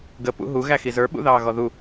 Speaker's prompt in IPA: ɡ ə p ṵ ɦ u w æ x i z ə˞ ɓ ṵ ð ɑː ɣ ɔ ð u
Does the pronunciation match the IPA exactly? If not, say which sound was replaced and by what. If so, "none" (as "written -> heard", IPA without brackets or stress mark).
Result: w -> ɣ